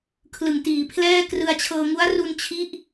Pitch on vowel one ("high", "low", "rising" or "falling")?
low